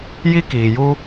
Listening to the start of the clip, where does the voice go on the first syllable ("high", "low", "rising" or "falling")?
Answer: high